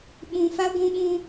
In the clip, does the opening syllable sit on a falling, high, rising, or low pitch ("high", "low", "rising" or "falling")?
low